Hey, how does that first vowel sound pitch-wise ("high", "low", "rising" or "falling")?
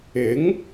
rising